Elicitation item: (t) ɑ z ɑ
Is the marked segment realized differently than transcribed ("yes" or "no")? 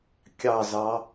yes